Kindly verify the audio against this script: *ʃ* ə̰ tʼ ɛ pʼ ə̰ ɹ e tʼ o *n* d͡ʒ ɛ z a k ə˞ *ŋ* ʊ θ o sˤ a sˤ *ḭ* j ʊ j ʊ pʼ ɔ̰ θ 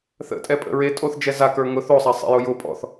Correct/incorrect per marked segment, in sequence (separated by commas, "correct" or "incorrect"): incorrect, incorrect, correct, incorrect